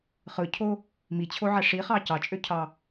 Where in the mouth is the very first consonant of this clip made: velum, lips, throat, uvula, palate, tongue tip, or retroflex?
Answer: uvula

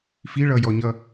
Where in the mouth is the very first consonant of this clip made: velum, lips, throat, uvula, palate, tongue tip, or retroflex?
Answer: lips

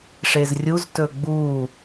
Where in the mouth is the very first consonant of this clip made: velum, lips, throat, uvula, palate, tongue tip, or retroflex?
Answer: retroflex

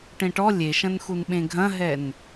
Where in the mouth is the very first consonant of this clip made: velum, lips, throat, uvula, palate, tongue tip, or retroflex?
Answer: retroflex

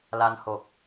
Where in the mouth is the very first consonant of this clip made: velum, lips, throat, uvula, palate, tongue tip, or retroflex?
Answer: tongue tip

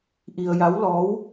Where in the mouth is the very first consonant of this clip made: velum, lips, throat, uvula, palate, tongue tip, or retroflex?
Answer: throat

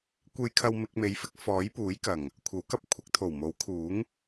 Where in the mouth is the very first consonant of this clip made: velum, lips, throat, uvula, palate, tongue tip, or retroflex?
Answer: velum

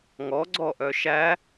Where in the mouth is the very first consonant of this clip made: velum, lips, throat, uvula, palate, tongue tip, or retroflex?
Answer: velum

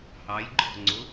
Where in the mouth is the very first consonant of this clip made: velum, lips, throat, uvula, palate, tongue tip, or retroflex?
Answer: throat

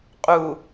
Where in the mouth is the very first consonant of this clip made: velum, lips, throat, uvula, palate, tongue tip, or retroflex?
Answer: uvula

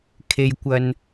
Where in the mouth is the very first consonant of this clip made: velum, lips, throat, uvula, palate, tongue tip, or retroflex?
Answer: velum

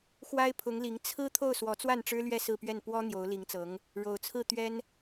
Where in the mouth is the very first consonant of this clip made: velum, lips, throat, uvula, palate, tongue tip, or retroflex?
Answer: velum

